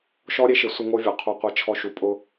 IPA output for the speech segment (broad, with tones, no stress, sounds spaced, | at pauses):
ʃ ɔ˦ ɾʲ e˦ ʃ ɪ˨˦ sʷ ɪ˦ ŋ o˦ vʲ ɔ˨ qʰ o˦ qʷ e˦ t͡ʃʰ ɔ˦ ʃ u˧ pʼ ʊ˦